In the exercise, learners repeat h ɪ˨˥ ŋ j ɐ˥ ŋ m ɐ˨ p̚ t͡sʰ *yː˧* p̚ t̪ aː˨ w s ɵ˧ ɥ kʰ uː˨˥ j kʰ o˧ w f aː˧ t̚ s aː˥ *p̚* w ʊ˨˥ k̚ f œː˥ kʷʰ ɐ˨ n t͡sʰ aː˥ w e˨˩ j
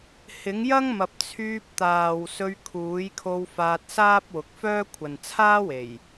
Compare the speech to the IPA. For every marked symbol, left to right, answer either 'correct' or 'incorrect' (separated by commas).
correct, correct